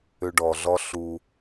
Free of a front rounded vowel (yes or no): no